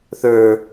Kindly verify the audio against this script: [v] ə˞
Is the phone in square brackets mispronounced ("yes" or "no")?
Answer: yes